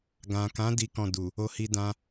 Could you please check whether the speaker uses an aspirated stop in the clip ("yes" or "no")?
no